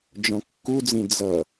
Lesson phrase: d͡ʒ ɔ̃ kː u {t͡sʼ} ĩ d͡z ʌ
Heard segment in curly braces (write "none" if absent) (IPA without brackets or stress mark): d͡z